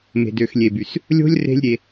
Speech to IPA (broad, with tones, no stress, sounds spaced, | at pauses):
m e̤˨ d ø˨ x lʲ e˨ b y˨ s | lʲ o̤˦ lʲ r e̤˦ lʲ ɾʲ e˧